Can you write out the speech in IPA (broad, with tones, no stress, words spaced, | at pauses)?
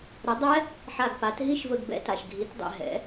ɾə˩˥dˤɛ˦˥ | ħa˧˩ɡpa˩˥t ɦi˦˥ʃvə˧˩ɡ bɛ̰˦˥ta˩ʃ ɡʱi˩˥tdˤɛ̰˧˩ ɦɛ̰˩˥